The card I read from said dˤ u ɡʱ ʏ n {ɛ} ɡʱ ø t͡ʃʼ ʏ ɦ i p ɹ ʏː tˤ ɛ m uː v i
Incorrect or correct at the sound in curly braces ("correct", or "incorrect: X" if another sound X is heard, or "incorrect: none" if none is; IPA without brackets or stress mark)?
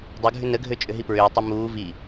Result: incorrect: ə